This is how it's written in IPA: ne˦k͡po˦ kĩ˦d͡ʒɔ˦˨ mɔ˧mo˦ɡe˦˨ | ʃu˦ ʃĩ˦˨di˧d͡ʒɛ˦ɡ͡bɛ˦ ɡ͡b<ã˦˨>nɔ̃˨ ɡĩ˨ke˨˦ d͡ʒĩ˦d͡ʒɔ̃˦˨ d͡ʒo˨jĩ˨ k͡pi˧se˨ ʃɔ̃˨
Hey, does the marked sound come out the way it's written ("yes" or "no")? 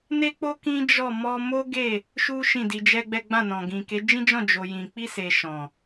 yes